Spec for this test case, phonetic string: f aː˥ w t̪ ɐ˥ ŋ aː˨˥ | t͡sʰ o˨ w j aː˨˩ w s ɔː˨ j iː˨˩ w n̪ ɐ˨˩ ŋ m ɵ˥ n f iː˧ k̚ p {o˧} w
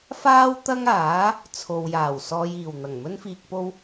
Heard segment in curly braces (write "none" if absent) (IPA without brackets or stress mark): o˥